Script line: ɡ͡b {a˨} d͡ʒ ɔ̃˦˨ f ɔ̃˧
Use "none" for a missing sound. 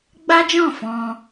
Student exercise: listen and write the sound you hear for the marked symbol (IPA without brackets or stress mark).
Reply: a˦